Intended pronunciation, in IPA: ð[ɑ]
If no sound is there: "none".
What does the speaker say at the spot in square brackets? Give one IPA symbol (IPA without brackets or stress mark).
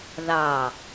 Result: ɑ